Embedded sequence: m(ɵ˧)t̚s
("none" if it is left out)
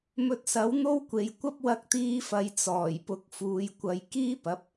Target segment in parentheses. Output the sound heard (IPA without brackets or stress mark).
ɵ˧